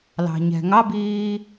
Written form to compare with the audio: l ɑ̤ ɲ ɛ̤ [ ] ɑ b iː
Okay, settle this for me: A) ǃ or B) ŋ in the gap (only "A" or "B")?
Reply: B